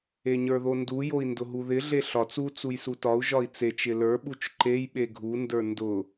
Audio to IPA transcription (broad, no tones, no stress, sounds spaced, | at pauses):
e ɲ ə˞ ð o n d u j o i̯ n d ʊ ɦ u ð ɪ ɮ e ɬ ɒ t͡s u t͡s u j s u t ɒ u̯ ʒ ɒ i̯ t͡s e t͡ʃ ɪ l ə˞ ɓ u t͡ʃ ǃ e j ɓ e ɡʱ u n d ə˞ n d ʊ